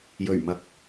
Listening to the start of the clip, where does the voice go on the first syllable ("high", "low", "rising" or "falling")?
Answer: low